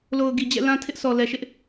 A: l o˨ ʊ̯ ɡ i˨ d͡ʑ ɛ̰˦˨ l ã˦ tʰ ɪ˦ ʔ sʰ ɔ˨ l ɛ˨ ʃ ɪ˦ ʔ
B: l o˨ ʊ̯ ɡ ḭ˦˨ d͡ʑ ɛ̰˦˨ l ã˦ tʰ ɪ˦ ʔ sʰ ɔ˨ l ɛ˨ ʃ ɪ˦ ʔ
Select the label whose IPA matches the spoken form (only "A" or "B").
A